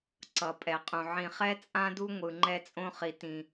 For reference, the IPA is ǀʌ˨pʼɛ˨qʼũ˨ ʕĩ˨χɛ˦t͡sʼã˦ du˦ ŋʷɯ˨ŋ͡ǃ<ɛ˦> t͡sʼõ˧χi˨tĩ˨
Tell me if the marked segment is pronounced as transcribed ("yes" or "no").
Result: yes